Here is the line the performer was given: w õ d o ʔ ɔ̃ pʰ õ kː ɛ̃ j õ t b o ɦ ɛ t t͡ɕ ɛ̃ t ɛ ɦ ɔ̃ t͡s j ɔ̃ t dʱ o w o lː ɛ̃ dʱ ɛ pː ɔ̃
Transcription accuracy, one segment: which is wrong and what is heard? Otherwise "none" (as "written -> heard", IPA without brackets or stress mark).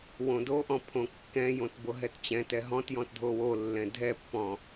t͡s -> t